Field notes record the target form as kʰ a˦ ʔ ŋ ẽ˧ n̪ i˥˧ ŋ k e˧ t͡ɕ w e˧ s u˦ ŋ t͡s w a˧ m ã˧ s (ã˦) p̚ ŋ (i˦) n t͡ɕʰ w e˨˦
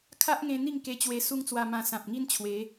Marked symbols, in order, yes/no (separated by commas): no, yes